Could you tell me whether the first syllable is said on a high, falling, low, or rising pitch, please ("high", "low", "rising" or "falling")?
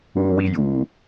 high